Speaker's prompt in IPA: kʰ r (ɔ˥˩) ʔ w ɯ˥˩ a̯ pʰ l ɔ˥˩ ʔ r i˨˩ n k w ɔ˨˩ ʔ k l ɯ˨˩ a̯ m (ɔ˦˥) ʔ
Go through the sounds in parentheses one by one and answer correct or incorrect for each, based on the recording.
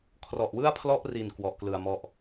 incorrect: ɔ˨˩, correct

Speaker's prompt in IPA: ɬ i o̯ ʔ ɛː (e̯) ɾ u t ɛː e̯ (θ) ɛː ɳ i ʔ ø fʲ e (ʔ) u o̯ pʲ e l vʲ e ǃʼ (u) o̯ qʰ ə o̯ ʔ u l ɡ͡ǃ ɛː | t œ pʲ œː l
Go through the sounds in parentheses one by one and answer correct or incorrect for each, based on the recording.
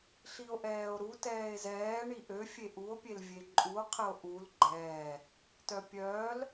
incorrect: o̯, incorrect: z, correct, correct

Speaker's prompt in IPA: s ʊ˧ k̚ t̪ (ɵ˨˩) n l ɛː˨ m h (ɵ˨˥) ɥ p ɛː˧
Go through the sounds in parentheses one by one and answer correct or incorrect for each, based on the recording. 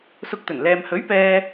correct, correct

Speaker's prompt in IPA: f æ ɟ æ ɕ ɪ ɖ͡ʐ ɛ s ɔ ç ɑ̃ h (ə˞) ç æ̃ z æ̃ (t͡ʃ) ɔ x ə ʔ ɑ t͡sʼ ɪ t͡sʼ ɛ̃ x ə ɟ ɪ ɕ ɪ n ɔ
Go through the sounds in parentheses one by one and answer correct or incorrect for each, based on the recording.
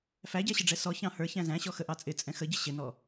correct, incorrect: ɕ

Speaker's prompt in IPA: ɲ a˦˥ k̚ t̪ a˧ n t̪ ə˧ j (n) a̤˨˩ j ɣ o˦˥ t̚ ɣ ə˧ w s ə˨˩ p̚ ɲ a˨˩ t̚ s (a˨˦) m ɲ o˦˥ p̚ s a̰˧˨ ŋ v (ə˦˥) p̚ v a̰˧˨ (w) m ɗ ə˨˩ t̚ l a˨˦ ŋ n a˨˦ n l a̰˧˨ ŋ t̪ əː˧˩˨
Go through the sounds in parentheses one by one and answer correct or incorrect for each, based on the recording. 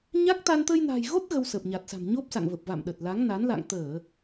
correct, incorrect: a̤˨˩, incorrect: ə˨˩, incorrect: none

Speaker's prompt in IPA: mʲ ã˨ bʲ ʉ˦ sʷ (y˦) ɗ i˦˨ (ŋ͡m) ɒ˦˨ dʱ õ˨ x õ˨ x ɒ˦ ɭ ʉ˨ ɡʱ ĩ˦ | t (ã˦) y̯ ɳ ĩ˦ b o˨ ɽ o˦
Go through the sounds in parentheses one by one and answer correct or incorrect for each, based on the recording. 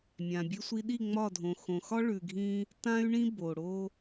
incorrect: i˦, correct, correct

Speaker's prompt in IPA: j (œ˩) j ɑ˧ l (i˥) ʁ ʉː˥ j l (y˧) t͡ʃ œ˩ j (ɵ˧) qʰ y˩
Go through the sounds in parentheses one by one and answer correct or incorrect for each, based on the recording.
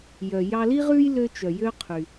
correct, correct, incorrect: ø˧, incorrect: ø˧

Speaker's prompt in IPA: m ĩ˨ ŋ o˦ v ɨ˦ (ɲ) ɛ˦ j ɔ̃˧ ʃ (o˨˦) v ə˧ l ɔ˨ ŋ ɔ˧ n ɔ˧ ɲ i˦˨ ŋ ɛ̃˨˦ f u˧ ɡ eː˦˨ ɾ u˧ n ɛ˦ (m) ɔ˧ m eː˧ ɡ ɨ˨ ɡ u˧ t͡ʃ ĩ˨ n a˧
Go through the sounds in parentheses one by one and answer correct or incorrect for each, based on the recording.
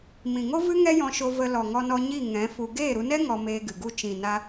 incorrect: ŋ, incorrect: o˧, incorrect: ŋ

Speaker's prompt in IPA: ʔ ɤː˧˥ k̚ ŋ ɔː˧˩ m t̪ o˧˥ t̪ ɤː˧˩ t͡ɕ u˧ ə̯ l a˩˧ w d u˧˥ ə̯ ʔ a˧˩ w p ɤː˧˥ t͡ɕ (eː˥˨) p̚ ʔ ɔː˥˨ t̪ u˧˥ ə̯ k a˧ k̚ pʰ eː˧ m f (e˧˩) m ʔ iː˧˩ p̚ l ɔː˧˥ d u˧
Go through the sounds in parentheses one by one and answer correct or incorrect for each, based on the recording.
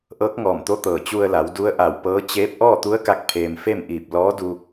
incorrect: eː˧˥, incorrect: e˥˨

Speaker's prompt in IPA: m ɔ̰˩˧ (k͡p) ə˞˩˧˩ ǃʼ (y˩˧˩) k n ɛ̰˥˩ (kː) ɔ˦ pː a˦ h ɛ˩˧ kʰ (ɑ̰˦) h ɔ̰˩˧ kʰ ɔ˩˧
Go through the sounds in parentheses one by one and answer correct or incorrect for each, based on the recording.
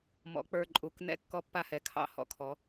correct, incorrect: u˩˧˩, correct, correct

